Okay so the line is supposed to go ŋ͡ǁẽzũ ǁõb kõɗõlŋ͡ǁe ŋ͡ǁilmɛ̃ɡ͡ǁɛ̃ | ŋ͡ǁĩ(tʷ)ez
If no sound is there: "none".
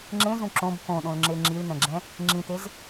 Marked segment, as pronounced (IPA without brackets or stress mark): t̪